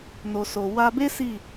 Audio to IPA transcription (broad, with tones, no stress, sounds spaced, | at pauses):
n o˨ s o˨ w a˧ b e˦ s i˦˨